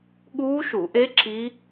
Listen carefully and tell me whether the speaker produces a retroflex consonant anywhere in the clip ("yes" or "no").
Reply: no